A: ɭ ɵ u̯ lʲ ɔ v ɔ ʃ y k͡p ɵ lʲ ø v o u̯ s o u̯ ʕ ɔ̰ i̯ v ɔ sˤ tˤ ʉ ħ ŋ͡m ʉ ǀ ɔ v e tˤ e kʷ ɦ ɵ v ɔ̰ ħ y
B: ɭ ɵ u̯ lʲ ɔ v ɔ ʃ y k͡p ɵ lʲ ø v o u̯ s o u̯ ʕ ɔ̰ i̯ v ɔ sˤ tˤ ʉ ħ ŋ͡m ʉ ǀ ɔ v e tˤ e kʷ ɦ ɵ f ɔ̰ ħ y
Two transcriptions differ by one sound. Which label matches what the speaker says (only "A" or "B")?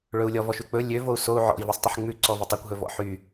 A